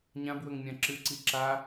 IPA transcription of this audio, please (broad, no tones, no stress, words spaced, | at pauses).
ɲãbwɵŋmʲã ǁɨǀi ǁa